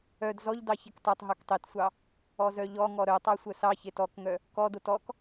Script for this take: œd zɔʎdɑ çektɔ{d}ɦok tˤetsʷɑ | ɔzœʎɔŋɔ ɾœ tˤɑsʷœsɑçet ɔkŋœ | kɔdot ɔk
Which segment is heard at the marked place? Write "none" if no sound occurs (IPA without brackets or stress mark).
tˤ